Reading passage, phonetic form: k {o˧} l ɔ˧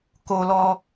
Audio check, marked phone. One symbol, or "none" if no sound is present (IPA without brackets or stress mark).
o˧